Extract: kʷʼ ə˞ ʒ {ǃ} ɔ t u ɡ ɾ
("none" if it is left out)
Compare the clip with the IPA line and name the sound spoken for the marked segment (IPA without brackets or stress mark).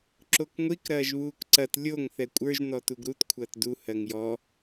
n